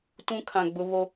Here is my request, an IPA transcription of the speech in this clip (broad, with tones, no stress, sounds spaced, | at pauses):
t ũ˦ kʰ ã˨ ɡ͡b ʊ˦ β o˦